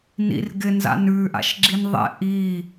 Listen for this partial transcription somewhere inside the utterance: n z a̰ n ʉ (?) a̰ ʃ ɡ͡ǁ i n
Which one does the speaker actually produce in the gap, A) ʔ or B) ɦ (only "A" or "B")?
A